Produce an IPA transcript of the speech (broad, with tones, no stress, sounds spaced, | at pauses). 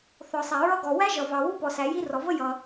θ ɔ˩ sˤ æ˩ ɹ ʌ˥ ɡ ɔ˩ w æ˥ ʒ ʌ˩ v ɑ˩ w u˥ p ɔ˩ s æ˩ j i˥ r ɔ˩ v ə˥ j ʌ˩